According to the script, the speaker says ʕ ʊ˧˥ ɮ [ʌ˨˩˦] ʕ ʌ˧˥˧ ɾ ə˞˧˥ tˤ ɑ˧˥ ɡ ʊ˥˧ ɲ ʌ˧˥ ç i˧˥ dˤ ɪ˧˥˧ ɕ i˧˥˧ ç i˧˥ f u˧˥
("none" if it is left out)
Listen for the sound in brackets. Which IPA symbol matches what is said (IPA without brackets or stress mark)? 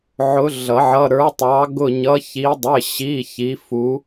ʌ˨˩˦